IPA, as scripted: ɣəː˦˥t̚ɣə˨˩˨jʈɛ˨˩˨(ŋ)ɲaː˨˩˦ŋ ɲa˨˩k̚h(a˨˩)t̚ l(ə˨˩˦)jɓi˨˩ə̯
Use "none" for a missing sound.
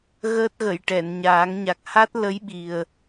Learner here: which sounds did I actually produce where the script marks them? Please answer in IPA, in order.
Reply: n, a˦˥, ə˧˥

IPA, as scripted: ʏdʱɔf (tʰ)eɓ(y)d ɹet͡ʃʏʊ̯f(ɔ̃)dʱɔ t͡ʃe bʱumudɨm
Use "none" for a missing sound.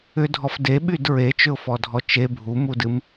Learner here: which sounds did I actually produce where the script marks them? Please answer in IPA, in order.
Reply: d, y, ɔ

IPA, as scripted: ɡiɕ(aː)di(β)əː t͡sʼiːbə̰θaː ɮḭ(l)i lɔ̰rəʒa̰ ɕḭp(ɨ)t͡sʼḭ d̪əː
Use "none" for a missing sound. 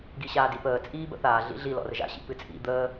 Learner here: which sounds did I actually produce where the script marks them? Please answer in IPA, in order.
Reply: aː, p, ɮ, ɨ

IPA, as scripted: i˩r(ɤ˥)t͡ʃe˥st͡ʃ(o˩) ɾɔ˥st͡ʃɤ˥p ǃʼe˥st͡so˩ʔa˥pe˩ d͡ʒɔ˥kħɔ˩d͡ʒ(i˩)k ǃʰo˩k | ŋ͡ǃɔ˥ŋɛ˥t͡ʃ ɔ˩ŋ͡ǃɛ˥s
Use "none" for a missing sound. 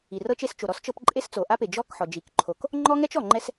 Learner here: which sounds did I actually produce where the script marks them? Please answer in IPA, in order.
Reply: ɤ˥, o˩, i˩

